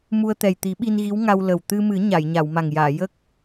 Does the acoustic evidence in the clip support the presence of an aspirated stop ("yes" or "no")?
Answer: no